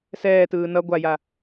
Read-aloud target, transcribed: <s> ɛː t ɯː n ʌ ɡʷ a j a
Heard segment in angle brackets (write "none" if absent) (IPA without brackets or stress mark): s